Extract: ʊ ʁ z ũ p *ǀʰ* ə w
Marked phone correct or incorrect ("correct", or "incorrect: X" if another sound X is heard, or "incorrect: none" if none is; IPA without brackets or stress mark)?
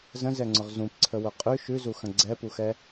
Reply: correct